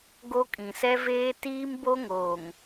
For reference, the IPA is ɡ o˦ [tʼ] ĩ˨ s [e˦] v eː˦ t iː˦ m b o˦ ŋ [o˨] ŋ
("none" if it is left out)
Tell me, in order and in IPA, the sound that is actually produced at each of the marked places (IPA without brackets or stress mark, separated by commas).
kʼ, ɛ˦, oː˨